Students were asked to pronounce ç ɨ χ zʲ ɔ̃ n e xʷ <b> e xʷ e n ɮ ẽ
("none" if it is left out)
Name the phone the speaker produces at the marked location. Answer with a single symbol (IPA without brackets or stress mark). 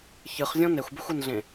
b